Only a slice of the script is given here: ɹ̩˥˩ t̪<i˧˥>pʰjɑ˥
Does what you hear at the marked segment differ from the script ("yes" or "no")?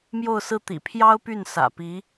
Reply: yes